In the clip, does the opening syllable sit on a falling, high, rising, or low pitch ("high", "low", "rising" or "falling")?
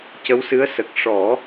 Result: rising